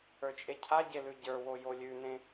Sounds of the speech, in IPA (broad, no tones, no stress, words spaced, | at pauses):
ə˞t͡ʃʼecʰa ɟelʉɟə˞wo jolʲʉnẽ